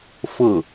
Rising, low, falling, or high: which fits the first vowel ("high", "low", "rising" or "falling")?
falling